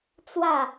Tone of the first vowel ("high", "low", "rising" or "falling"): falling